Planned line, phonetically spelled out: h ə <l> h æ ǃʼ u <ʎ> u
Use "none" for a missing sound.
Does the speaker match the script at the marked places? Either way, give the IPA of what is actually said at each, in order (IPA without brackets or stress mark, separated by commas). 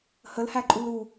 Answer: l, l